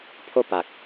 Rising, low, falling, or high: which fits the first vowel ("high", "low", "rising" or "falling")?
falling